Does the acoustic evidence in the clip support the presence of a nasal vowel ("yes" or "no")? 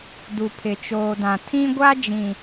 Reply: yes